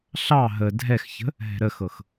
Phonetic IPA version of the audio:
ɬ ɑ ɦ ə dʱ ɛ x ç ə̤ | ɦ ɛ̤ ɾ ə x ɤ x

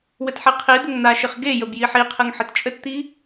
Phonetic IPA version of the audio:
w ə t ħ i qʰ i d̪ ə ŋ n̪ a ʃ ɪ χ ɡ e j ə b j i ħ i qʰ ɨ ŋ ħ ə t t͡ʃʼ ə t t̪ i

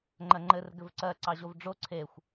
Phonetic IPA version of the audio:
ŋ͡ǃ ɜ ŋ͡ǃ ɘ r ɡ ɘ v ǀ ɜ ǀ ɑ ʑ o v ɖ͡ʐ o ǀʰ e xʷ

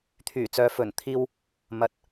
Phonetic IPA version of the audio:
t̪ʰ yː˨˩ t͡s œː˨˧ f ɵ˨˩ n t̪ʰ iː˧ w | m ɐ˨ t̚

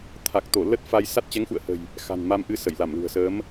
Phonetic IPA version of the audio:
t̪ʰ a˨˩ k̚ t̪ o˧˩ l ə˦˥ t̚ f a˧ j s a˦˥ t̚ t͡ɕ ɛ˨˦ ŋ x ṵ˧˨ ə̯ h ə̤˨˩ j | x a̤˨˩ n m a˧ m ʔ ɨ˧ s ə˧˩ j l a˧˩ m l ṳ˨˩ ə̯ s əː˨˦ m

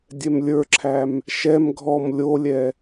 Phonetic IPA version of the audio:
dʲ ɛ m lʲ ə˞ ǁʰ æ m | ʃ ɛ m ɡʱ ɔ m lʲ o lʲ ɛ

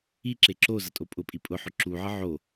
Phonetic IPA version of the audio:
i ǁ e ǁ o z ɐ tʼ o pʼ ʊ pʼ i pʼ ʊ ħ ʊ ǁ u ʕ ə ʕ o

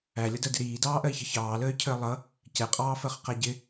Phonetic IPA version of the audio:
æ lʲ ʌ d ɜ d ɪ ɾ iː d ɑː ʔ ɜ i̯ ç ʌ ç ɑː l əː y̯ cʰ əː lˠ ʌ | c ɛ qʼ ɑː f ɜ χ q æ ɟ ɪ

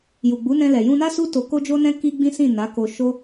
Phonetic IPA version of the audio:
j u˨ ɡ͡b u˨˦ n ɛ̃˧ l ɛ˨ j ũ˧ n a˦ s u˦ t o˦ k o˦ d͡ʒ o˦ n ɛ̃˦ k i˦ ɡ͡b ĩ˦ s ĩ˦˨ n a˨˦ k o˧ ʃ o˦

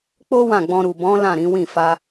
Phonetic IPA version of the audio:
k͡p o˦ w ã˦˨ ɡ͡b ɔ̃˧ ɾ u˨ b ɔ̃˨˦ l ã˦˨ ɾ ĩ˨˦ w ĩ˦˨ f a˧

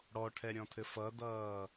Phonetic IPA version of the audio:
ɽ ɔ ʈʰ ɛ ɾʲ ɔ̃ tʰ ɘ f ʌ d ʌː

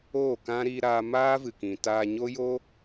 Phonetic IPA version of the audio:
oː˦˨ k ã˦ ɾ iː˧ ɾ aː˧ m aː˦ v ɨ˨ k ĩ˨ t aː˧ ɲ o˦ j o˦

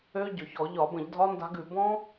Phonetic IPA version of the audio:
ø˦˥ ɟ ʏ˨˩ ç ɔ˧˩˧ ʎ ɒ˧˩˧ b ə̃˧˩˧ ʎ dʱ ɒ˦˥ n d a̤˦˥ ɡ ʉ˧˩˧ b ɔ̃˦˥

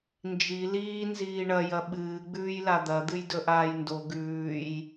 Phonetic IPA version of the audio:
n d͡ʒ i l iː n z iː ɳ ɐ j ɐ ɓ ɨː ɡ͡b ʉː j l a d̪ ɐ d̪ ɨ j d ɵ ʔ aː j n d o ɡ ʉː j

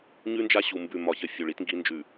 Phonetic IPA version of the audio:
ɲ ʉ˦ n d͡ʒ a˦ ɕ u˨ m b ʉ˨ m ɒ˨ ç ə˨ fʲ u˨ ɭ i˦ t ŋ ɡ i˦ n d͡ʒ ʉ˨

